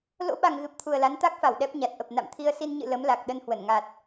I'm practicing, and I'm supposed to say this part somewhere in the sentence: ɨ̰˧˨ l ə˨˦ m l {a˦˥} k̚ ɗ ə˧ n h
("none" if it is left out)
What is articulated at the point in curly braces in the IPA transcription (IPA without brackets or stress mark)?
a˨˩